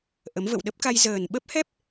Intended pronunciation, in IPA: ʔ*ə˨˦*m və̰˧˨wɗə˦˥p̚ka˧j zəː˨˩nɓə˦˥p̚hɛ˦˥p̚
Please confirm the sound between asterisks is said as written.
yes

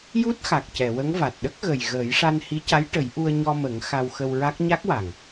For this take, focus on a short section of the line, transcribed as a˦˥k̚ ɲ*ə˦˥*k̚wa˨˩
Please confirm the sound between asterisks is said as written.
no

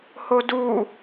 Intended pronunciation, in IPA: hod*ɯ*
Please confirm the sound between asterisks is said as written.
no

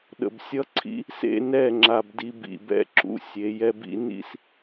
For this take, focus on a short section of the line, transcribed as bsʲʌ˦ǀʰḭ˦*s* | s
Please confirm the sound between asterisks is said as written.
no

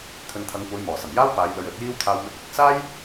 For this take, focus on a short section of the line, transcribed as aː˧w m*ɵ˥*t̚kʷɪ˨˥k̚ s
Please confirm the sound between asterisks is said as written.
no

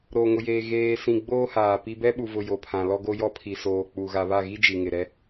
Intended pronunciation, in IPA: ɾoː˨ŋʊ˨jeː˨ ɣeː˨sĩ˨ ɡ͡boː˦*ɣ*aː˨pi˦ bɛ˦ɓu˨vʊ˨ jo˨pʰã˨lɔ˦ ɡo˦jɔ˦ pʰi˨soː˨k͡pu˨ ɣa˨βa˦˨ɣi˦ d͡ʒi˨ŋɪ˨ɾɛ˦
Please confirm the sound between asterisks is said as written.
no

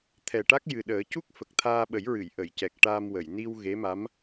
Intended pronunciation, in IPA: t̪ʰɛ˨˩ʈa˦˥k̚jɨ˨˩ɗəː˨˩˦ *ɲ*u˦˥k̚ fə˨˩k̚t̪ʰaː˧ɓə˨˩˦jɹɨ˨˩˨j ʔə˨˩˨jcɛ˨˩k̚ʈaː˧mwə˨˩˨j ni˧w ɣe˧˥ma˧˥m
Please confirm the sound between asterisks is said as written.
no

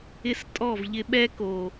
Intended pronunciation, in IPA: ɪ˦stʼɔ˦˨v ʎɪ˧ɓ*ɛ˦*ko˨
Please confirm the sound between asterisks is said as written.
yes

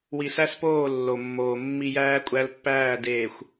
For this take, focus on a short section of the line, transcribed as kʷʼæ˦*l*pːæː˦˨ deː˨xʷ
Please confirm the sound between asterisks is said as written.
yes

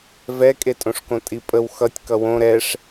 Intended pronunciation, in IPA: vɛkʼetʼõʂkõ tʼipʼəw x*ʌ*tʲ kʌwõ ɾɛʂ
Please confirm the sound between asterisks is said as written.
yes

